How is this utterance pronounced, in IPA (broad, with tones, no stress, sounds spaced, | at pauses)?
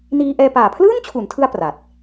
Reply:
n iː˧ ʔ ɛː˧ p aː˨˩ pʰ l ɯː˥˩ n t͡ɕʰ u˩˦ n tʰ ɯ˧ a̯ p r a˨˩ t̚